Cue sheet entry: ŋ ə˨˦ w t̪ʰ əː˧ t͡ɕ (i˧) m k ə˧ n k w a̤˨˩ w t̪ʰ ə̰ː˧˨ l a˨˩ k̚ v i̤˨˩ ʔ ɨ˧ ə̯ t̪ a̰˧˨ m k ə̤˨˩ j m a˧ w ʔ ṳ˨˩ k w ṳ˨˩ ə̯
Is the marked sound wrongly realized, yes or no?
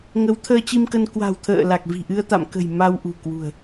no